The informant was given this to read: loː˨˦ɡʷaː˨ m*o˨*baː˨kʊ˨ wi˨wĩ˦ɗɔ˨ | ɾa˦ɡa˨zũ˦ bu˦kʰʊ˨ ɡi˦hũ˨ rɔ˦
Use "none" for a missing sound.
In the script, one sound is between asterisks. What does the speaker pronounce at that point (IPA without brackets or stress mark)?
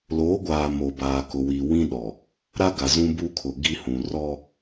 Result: o˨